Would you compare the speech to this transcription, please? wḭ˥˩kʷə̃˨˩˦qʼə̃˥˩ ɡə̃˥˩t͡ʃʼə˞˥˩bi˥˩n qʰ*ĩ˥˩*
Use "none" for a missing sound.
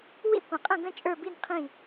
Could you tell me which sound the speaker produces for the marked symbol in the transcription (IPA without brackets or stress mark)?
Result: ĩ˥˩